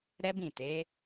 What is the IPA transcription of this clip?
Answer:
ɾ ɛ˦ b ĩ˦˨ t e˨˦

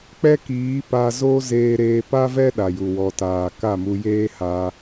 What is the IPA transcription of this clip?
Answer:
k͡p ɛ˦ k iː˨˦ p a˧ z o˦ z eː˧ ɾ eː˧ p a˦ v ɛ˦ ɗ a˨ j u˨ w ɔ˨ t aː˨ k a˦˨ m u˧ j eː˦ h a˧

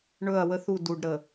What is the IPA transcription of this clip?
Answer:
ɳ ɵ˦˨ ɐ̯ w ə˦ θ u˦˨ d u˨ ɖ ɾ ə˨

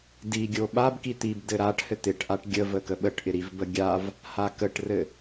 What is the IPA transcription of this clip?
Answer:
d i ɡʲ o ɓ a b k i t̪ i b d ɘ ɾ a ʈ h ɘ t̪ ɪ ʈ ʔ a ʈ ɡʲ ə v ə k ə ɓ ə ʈ ʔ ɪ ɾ i v b ə ɡʲ a v | h a k ə ʈ r ɘ

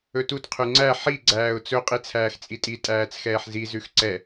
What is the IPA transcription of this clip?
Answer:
ɵ t u t qʰ ʉ ŋ͡ǀ æ ħ i ɡ͡ǀ æː ʊ̯ t͡s ɵ qʼ i t͡sʰ æː x t͡sʼ i tʼ i tʼ æː t͡s x ɛː ħ z i z ʉ x ǀ ɛ

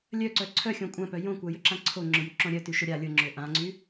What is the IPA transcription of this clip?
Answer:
lʲ œ ǀ œ ǀʰ œ xʲ õ kʷʼ ã p œ j õ kʷ a j ʏ ǁ ã ǀʰ o ŋ͡ǁ ʏ j y ǁ õ ɾʲ œ t y ʃ ʊ ɾʲ a lʲ ʊ ŋ͡ǁ ʏ ʔ ã ŋ͡ǀ y

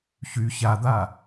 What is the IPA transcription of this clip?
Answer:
ç y ç a d̪ a

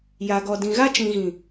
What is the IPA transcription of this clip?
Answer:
j a˨ ɡ ɔ˨ d ĩ˨ ɣ a˦ t͡ʃ ĩ˨ ɣ ĩ˨

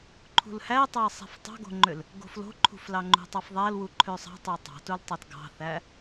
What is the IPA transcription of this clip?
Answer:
ǃʰ ṳ l h æ tˤ ɑ sˤ æ̤ f tˤ ɑ̤ ɡ o̤ ŋ͡ǃ ø l | ɡ o̤ f l o̤ ǃʰ ṳ f l ɑ ŋ͡ǃ ṳ tˤ ɑ f ðˤ æ l w u ǃʰ ø sˤ ɑ̤ tˤ ø tˤ ɑ̤ t u l tˤ ɑ t ɡ ɑ̤ θ æ

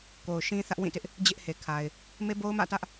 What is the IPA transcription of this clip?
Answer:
k o˨ ʊ̯ ʃ ĩ˦ θ ä˦ ʔ w ĩ˦˨ t ɪ˦ ʔ | d͡ʑ ɪ˦ ʔ h e˨ kʰ a˨ ɪ̯ | m e˦ b o˦ ʊ̯ m ä̰˦˨ t ä˦ ʔ

